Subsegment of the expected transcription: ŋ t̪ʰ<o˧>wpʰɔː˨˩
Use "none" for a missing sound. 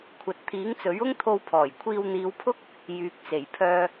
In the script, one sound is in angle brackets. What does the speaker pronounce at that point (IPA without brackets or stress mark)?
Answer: o˧